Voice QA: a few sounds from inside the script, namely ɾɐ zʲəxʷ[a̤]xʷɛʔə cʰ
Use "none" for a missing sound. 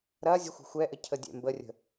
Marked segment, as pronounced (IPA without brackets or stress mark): ə̤